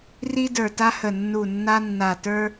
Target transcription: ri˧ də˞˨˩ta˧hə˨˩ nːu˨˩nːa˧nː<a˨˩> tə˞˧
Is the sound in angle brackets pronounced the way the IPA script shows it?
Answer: yes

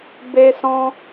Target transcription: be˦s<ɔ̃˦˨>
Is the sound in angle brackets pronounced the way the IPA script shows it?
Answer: no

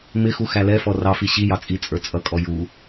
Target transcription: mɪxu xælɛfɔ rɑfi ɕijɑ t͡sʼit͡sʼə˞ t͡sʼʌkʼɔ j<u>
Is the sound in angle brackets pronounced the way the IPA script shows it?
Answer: yes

